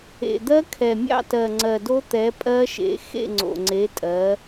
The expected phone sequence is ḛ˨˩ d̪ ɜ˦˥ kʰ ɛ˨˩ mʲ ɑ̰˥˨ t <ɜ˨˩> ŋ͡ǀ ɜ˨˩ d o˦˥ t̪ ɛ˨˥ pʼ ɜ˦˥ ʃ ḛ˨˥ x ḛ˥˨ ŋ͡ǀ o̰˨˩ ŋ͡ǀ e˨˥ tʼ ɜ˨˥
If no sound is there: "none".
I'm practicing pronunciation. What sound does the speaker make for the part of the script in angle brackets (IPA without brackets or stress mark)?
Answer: ɜ˨˩